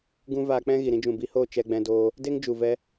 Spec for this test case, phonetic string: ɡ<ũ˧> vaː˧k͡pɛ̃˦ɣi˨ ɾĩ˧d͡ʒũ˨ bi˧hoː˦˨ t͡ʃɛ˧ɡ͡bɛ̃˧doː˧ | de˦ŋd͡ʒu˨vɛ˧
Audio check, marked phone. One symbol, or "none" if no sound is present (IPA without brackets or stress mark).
ũ˦